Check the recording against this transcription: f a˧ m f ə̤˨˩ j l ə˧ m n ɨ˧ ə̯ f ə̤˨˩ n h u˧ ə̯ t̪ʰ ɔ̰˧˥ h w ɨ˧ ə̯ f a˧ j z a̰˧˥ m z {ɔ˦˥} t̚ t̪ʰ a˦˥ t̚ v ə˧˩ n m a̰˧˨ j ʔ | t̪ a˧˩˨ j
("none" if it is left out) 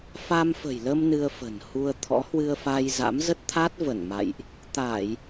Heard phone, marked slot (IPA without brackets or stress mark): ə˦˥